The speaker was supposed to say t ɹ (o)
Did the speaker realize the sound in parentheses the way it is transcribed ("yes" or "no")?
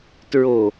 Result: yes